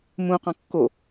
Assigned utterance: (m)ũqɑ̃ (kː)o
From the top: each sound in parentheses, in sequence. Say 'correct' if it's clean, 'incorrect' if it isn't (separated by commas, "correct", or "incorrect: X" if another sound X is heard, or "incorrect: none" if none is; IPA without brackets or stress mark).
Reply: correct, correct